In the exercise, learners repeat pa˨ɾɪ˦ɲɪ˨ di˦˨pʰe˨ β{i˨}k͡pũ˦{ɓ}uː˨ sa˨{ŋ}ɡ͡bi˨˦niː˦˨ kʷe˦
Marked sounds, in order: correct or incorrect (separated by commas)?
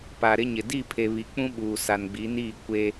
correct, correct, incorrect